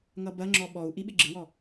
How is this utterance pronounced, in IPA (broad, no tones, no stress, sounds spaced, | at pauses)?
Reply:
ŋ ʌ b ɐ ŋ͡ǁ ɔ ɓ ɔ u̯ ʔ i ɓ ɪ ɡ͡ǁ ɪ w ɔ